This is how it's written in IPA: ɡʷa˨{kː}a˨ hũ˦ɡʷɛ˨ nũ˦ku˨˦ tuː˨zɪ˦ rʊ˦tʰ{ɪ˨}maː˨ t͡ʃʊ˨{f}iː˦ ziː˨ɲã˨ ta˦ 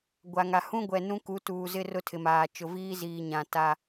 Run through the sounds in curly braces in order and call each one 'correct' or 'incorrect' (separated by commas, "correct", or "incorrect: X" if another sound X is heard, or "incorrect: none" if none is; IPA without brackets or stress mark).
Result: incorrect: ŋ, correct, incorrect: v